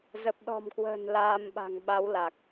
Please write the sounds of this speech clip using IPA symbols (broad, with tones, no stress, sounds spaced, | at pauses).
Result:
z ə˨˩ p̚ ɗ ɔ̤˨˩ m k w ə̤ː˨˩ n l aː˧ m ɓ a̤˨˩ ŋ ɓ a˨˦ w l a˨˩ k̚